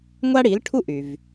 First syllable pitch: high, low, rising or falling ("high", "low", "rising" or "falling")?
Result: high